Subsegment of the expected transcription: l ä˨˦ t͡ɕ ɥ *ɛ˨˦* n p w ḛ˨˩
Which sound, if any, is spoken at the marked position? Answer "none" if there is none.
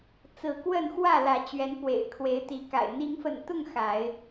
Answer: ɛ˨˦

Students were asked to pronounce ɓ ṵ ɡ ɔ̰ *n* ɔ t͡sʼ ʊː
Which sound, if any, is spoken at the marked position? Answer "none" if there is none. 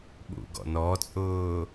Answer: n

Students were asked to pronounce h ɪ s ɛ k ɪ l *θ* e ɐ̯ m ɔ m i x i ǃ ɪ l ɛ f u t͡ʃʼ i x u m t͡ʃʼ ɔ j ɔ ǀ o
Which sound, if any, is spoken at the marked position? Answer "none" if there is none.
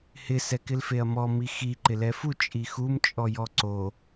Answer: f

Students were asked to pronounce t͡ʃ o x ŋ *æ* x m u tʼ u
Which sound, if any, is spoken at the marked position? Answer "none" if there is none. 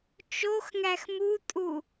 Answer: æ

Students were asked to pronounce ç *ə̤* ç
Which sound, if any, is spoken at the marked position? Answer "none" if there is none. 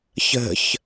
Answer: ə̤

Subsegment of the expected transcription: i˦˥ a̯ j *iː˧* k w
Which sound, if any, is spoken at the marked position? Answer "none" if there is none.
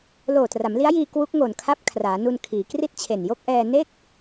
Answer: iː˧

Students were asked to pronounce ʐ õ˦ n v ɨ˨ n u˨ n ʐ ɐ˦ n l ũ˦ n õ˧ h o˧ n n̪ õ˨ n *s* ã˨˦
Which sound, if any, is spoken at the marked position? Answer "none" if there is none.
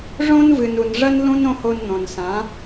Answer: s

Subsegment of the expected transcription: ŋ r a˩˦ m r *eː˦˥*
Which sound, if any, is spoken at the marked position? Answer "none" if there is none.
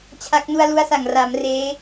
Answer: eː˦˥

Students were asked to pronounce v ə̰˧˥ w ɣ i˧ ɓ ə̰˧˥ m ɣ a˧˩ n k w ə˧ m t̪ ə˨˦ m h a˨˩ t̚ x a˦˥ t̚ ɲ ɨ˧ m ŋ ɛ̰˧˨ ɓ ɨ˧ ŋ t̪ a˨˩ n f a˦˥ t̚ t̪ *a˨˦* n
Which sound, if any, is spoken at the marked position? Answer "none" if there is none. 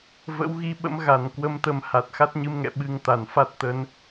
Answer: ə˨˦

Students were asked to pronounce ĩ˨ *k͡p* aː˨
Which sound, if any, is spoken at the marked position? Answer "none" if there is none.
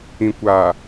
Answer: kʷ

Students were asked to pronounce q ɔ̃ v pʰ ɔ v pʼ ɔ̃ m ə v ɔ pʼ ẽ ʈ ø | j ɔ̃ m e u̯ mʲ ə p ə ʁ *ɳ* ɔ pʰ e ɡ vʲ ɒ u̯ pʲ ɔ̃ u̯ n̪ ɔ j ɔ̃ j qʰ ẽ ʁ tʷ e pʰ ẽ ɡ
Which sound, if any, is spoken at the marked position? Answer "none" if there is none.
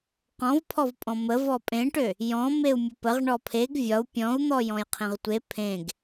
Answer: ɳ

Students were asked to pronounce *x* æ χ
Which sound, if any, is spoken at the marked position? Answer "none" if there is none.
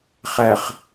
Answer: χ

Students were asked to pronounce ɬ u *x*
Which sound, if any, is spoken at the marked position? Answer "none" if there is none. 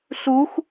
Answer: x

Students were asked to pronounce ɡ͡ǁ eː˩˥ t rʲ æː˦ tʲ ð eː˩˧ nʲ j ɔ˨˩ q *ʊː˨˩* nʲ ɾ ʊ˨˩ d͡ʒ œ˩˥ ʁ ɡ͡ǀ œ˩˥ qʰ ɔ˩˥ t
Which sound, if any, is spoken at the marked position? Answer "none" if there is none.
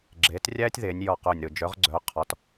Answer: ʊː˨˩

